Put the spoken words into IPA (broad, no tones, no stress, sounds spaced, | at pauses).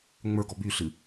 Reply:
ŋ͡m ə˞ ɡ ɔ b y ɬ ɨ